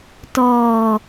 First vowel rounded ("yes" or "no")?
yes